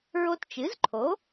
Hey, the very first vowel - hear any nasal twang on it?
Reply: no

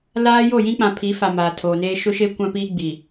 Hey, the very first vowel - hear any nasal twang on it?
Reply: no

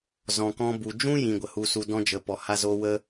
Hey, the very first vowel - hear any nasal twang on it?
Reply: yes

